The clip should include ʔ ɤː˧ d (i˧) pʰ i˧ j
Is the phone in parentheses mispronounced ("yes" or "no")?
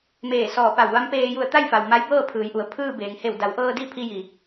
yes